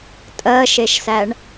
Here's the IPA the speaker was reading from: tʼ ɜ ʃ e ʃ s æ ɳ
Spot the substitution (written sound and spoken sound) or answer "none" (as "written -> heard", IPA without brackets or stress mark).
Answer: none